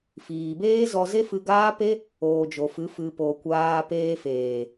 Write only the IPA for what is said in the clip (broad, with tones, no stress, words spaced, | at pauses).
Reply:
fiː˨beː˦zɔ˧ze˦ fɨ˧ɡaː˦pe˦ | oː˨d͡ʒo˨fɨ˨˦ fɨ˨po˨ kʷaː˧peː˧ feː˨